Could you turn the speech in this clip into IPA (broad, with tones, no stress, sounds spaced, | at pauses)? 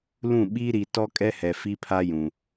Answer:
l ũ˦˨ ɓ iː˦ ɾ i˨ t ɔ˦ kʼ ɛ˦ h ɛ˨ f i˦ pʰ a˦ j ũ˨